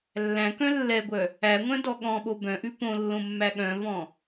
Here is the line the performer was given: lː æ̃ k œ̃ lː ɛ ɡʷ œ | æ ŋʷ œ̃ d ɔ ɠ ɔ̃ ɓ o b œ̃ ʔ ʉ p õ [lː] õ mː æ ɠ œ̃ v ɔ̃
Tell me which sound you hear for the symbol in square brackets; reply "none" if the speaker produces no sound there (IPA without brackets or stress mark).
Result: lː